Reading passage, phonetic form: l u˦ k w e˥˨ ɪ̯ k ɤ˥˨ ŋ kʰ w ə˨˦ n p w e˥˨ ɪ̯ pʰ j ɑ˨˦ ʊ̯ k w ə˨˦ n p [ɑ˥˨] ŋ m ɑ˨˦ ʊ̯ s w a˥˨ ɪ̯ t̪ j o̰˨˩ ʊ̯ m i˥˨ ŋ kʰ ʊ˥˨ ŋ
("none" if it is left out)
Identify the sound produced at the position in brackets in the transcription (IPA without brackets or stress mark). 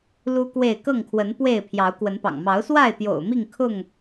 ɑ̰˨˩